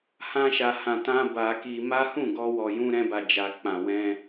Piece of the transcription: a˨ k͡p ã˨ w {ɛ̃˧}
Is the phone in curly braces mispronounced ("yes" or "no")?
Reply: no